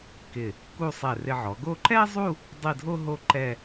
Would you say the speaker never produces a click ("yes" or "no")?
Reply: no